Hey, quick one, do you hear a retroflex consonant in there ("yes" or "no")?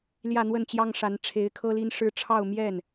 yes